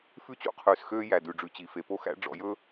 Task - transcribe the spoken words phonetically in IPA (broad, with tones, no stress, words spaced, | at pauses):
fʉ˦t͡ɕṵ˦qʰʉː˨s xøː˦jæ˨ dʉ˨ɖ͡ʐʉ˨ t͡ɕi˨fe˨po˦xæ̰˦ ɖ͡ʐɔ̰˨jɵ˦